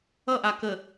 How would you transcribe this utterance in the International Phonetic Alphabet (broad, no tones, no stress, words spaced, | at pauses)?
ʌʔa kə